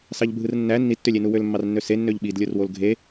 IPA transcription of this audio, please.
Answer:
s ɑ ʎ bʱ ɯ r nː æ nː i tː ø lʲ e n u w ø l mː ɑ r nː ø s e nː ø ʎ ɓ i d lʲ o r w o l ɡʱ e

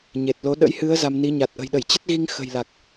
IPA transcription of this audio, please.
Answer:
ɲ e˨˩ t̚ l o˨˦ ɗ ə̰˧˥ j h ɨ˨˦ ə̯ z a˧ m n i˨˦ ɲ a˨˩ t̚ ʔ ə̤˨˩ j ɗ ə˧˩ j t͡ɕ ə˦˥ t̚ ɣ i˧ ŋ x ə̤˨˩ j l a˨˩ k̚

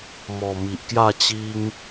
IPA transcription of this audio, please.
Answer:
m ɔ˨˩ m i˨ ʔ k j a˥˧ t͡ɕ i˦ ŋ

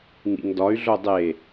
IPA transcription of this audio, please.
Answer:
ŋ ḭ ŋ d ɒ y̯ ɮ o dˤ e

